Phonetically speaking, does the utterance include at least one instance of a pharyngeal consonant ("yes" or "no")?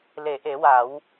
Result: no